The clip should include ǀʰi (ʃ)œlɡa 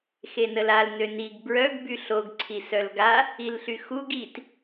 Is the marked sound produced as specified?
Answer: no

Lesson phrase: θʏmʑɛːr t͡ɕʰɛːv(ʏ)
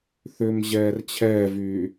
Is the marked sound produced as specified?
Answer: no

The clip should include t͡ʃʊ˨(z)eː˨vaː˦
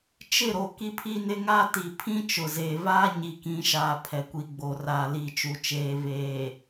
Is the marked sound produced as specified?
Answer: yes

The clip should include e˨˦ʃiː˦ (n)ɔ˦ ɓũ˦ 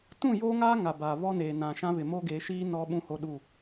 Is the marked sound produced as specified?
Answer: yes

